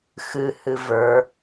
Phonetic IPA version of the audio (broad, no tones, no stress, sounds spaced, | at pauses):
x ɨ h ɨ v ə˞